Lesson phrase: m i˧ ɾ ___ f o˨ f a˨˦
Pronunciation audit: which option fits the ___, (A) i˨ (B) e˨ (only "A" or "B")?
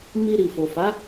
A